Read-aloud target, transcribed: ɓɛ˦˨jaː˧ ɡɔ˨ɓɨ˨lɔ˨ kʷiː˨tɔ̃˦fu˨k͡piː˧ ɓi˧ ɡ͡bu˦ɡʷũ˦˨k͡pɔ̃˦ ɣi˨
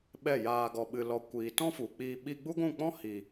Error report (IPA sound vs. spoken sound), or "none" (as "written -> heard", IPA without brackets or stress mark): ɣ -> h